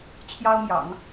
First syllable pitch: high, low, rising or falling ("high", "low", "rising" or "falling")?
high